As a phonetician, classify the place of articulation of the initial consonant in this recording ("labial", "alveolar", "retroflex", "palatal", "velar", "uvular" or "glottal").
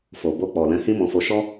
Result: labial